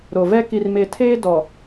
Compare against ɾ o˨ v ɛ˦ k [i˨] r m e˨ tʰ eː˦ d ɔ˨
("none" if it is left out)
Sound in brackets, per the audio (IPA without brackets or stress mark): i˨